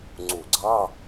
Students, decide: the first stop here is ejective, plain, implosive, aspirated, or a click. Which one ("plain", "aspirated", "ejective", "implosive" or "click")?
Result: click